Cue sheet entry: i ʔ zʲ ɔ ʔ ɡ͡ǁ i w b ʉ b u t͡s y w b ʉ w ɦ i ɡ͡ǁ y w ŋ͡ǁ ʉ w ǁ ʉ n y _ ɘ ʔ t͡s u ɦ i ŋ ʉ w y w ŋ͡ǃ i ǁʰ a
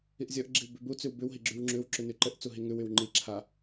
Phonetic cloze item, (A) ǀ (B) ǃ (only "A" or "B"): B